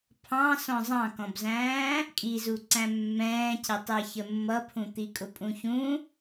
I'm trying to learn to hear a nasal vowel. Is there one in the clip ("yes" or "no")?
yes